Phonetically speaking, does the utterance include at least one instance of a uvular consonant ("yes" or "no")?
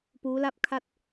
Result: no